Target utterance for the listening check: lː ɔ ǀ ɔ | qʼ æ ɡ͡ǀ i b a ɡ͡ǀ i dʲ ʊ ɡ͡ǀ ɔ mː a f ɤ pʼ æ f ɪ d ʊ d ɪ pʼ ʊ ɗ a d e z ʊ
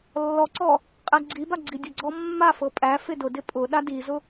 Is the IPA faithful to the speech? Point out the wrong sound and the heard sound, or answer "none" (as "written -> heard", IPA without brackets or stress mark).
e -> i